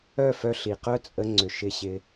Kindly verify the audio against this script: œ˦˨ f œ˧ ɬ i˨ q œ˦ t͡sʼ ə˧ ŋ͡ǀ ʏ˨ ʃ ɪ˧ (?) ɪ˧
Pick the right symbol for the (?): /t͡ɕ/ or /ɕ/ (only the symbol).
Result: ɕ